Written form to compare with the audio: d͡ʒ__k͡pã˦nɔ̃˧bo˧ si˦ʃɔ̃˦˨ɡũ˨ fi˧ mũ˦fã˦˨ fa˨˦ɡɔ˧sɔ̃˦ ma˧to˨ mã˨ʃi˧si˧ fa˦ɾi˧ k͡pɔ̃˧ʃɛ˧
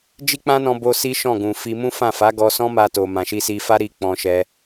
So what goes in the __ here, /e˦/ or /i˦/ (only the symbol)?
i˦